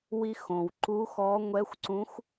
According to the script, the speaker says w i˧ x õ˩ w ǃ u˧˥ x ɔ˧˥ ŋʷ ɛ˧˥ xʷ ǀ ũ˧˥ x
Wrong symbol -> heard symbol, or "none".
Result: none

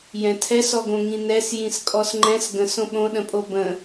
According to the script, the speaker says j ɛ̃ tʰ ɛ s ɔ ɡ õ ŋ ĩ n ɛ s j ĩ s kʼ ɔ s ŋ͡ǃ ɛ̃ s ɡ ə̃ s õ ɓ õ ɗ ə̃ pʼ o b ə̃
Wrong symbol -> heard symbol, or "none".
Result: none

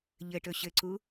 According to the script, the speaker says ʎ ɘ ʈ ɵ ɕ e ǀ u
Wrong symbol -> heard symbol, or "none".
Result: e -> ɘ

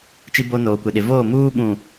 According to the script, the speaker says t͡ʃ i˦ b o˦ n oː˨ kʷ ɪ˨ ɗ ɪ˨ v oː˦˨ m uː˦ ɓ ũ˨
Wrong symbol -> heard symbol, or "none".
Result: none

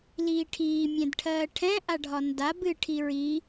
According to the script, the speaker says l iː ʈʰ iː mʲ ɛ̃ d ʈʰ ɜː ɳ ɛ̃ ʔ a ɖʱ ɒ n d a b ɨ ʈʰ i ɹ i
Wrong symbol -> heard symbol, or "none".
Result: ɳ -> ʈʰ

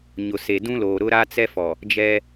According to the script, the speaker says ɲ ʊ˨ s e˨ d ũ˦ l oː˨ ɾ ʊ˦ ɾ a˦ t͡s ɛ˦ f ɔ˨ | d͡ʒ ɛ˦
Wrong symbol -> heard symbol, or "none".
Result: none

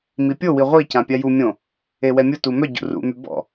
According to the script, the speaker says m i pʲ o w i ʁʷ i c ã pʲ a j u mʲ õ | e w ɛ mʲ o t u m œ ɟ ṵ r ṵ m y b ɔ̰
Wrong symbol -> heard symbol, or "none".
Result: none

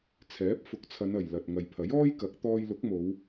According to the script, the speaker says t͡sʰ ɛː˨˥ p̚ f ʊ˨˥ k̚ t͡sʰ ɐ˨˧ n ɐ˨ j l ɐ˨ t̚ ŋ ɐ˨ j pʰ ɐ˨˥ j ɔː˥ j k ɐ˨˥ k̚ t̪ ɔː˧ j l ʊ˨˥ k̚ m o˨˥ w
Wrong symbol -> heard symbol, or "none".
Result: o˨˥ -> o˨˧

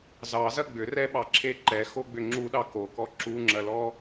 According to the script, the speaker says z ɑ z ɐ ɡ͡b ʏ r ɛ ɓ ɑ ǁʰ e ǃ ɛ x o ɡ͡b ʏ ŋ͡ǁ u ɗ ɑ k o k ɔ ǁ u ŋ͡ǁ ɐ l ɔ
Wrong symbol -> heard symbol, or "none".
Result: none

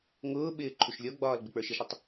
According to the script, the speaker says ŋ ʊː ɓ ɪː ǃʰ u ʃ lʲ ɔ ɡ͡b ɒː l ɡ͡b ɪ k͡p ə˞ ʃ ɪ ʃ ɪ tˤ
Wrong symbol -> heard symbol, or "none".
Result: none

